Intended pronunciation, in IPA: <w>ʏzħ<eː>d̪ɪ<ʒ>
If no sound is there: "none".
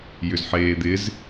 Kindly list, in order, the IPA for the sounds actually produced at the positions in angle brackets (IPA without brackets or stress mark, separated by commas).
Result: j, eː, z